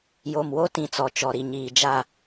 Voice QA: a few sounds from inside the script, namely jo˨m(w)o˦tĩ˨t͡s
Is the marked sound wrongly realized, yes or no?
no